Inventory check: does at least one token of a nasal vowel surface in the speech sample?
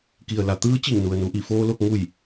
no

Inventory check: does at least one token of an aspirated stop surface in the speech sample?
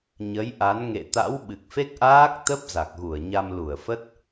no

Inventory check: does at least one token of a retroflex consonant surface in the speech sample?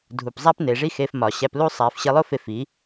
yes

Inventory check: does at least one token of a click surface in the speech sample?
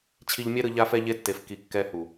no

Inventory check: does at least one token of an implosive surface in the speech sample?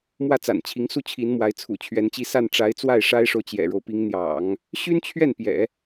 no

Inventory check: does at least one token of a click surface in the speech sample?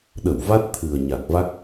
no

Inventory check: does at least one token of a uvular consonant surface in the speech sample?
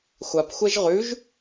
yes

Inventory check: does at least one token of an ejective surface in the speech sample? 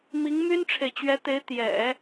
no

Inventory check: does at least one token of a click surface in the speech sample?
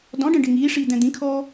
no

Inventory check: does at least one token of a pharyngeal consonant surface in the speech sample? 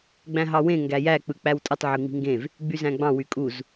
yes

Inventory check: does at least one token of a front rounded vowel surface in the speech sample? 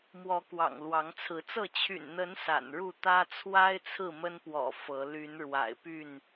yes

